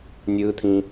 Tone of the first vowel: high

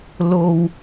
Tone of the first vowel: low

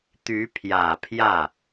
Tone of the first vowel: rising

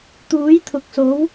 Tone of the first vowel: rising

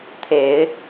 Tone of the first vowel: rising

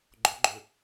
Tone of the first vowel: rising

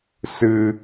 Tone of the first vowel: low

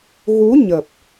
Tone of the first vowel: rising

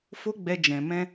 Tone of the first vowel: high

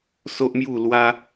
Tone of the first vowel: high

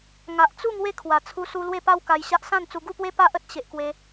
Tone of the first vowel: low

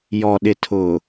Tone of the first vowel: low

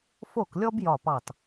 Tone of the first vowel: falling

